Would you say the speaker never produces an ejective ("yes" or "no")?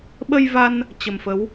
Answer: yes